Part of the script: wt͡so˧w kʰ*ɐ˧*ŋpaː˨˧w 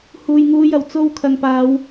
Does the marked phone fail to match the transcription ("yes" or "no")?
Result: yes